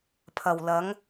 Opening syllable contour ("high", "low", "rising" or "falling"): low